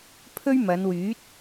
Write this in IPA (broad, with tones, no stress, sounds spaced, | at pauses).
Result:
pʰ ɵ˥ ɥ m ɐ˨˧ n w yː˨˥ t̚